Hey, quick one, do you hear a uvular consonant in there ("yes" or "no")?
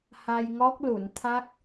no